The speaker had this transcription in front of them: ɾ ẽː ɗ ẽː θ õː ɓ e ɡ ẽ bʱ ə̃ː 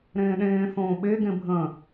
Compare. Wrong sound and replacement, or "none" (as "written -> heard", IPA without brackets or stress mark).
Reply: none